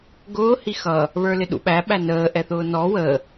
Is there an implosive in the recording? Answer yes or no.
yes